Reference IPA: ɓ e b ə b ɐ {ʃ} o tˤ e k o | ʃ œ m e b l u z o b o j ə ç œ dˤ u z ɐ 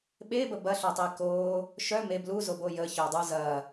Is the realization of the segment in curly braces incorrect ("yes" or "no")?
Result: yes